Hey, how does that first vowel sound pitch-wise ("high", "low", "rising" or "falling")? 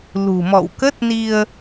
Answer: low